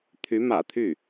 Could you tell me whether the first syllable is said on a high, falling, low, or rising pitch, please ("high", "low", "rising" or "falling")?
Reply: rising